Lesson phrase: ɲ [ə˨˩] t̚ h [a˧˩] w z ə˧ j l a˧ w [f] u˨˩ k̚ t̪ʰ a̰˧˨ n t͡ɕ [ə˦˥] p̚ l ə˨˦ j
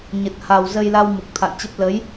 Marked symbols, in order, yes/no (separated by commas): yes, no, no, yes